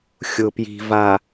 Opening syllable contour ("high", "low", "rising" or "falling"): low